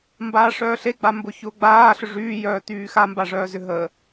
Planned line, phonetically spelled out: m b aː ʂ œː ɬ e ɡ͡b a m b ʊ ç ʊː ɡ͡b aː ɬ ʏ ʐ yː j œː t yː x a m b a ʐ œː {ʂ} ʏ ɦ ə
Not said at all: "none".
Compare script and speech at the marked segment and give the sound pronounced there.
z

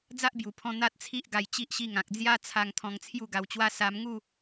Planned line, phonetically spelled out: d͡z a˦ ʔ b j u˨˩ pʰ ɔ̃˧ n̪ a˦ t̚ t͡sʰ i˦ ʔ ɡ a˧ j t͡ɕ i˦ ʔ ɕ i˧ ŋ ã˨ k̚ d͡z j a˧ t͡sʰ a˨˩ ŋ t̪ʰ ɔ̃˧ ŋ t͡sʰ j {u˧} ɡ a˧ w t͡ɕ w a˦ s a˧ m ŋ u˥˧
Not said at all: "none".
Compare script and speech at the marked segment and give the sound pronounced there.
u˥˧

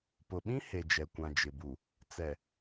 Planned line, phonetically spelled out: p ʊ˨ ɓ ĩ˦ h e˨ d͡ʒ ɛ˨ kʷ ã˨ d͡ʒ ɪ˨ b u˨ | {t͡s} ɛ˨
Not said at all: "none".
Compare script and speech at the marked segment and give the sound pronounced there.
t͡s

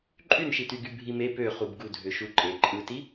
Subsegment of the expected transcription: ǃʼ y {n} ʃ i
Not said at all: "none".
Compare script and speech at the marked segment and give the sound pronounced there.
n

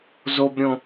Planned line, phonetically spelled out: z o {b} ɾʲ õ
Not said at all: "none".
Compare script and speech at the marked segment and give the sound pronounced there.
b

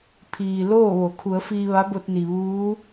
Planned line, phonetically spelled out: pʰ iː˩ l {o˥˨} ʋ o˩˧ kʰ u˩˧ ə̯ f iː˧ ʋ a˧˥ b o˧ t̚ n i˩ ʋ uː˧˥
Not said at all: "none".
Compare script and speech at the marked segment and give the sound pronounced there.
oː˥˨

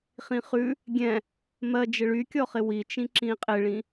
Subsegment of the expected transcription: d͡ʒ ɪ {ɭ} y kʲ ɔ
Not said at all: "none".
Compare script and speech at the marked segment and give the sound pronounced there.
ɭ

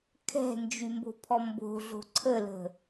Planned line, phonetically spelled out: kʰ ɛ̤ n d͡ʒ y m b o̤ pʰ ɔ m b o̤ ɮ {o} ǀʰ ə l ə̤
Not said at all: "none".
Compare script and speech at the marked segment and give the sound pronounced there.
o̤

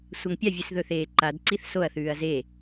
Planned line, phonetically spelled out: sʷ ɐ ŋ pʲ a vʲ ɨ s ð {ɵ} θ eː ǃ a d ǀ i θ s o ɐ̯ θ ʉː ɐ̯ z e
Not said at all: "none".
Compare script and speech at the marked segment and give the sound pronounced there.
ɵ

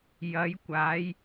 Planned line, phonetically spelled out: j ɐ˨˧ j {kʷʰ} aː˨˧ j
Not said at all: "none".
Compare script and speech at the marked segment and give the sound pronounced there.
kʷ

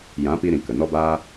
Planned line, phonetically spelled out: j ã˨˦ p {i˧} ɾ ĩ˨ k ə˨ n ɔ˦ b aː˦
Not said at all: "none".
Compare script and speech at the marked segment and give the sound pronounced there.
i˧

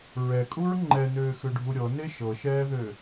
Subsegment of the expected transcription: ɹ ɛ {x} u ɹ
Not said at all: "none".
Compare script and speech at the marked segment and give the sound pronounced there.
kʼ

